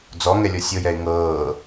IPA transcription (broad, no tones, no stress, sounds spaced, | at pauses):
d͡z ɔ ŋ ɛ lʲ ɔ sʲ ɤ j ɛ ɪ̯ ŋ ɤː